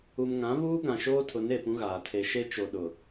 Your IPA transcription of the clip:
u˨ m ŋ ã˨˦ β uː˦ ɡ ã˨ ʃ oː˦ tʰ ʊ˨˦ n e˨ p ũ˦ ɣ aː˨ tʰ e˨ ʃ e˦ t͡ʃ o˨ ɗ ʊ˨

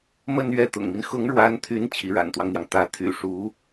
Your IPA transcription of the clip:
m ə˥˧ n ɥ ɛ˥˩ t̪ ʊ̰˨˩ ŋ m i˦ n x ʊ˧˥ ŋ ɻ w a˧˥ n t̪ʰ y˧˥ n t͡ɕʰ i˧˥ ɻ a̰˨˩ n t̪ w ɑ˦ ŋ n̪ j ɑ˩ ŋ t̪ ä˧˥ t̪ʰ y̰˨˩ ʂ u˧˥

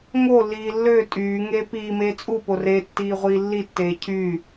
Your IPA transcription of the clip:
ŋ o lː iː lː ø tʼ yː ŋ eː p iː m eː t͡sʼ u p o r e tː iː ʁʷ iː lː i tː eː cʰ yː

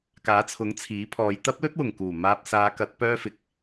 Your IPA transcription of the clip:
k aː˨˥ t͡sʰ ʊ˨˥ ŋ t͡sʰ iː˨˥ pʰ ɔː˨˧ j t̪ ɐ˥ p̚ l ɵ˥ t̚ w ʊ˨˩ ŋ k uː˨˩ m aː˧ p̚ s aː˨˧ k ɐ˨˥ t̚ p œː˧ f ɪ˨ k̚

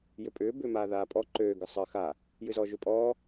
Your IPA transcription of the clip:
j ø pʼ ʏː b ʏː m aː ð aː pʼ ɔ ǃ øː ɡ ə sˤ əː x a | j ɨ z ɔː ʒ ø pʼ ɔː

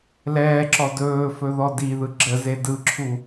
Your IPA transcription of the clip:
l ɛː ǁ ɔ d ɵː f ɵ ð ɔ d i ð ɯ ɡ͡ǁ ə z e d ɯ ǁʰ u

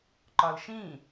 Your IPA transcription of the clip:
ǃ ɒ l ʃ ĩ

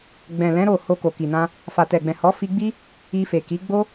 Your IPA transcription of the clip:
ɡ͡b ɛ̃˨ l ɛ̃˨˦ ɾ o˦˨ h o˧ k o˨ k i˨ n ã˧ | f a˨ t ɛ˨ ɡ͡b ɛ̃˨ h ɔ˨˦ f i˧ ɡ͡b i˦ | i˧ f e˨ k i˨˦ ɡ͡b o˦

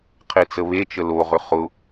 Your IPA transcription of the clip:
qʰ e t͡s ə β e t͡ʃ ə l o ʁ ʏ χ ʊ

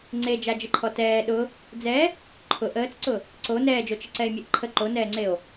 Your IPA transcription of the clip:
ŋ͡ǀ e d͡ʒ a d͡ʒ ə ǃʰ ɔ t ɛː ɗ ʊ | d͡z ɛ | ǃʰ ʊ ʔ əː t͡s ǀ ʊ | ǀ o n ɛː d͡ʒ o t͡ʃ ə ǀ ɛ e̯ mʲ ɛ ʔ ǃʰ ə ǃ o n ɛː ŋ͡ǀ e o̯

